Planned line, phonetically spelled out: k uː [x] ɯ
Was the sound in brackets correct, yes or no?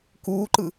no